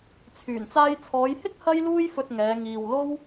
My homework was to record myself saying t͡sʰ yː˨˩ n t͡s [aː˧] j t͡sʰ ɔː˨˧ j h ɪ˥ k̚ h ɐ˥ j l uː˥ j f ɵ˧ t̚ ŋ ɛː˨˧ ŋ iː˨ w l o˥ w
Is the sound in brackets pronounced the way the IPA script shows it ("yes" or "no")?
yes